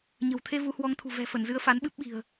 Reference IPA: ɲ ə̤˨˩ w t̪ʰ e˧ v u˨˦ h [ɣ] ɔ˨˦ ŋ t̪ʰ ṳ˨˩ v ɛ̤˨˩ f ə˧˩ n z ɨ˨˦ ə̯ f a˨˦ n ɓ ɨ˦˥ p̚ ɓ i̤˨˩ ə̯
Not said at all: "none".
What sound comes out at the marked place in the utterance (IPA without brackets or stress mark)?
w